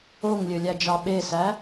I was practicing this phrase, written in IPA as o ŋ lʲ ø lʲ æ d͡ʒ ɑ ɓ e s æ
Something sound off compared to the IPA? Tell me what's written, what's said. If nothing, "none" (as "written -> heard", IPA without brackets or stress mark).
none